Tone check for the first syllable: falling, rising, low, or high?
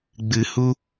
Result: low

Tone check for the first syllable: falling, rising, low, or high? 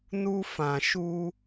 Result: high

